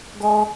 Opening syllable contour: high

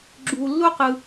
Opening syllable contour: low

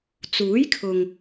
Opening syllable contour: rising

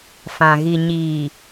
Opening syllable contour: low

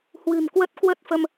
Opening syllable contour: low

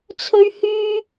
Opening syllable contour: high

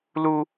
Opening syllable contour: high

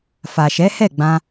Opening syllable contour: low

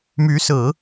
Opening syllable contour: rising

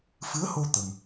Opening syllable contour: rising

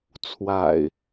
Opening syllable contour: low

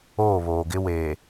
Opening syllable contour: falling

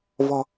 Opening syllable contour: low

